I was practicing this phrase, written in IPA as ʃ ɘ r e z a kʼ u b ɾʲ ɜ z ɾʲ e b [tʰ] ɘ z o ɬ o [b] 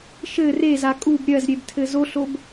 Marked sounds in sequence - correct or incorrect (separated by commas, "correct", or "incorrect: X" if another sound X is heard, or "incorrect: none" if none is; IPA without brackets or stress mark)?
correct, correct